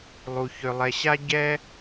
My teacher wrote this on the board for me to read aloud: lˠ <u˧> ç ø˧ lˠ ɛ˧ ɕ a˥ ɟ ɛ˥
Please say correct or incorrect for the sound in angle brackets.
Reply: correct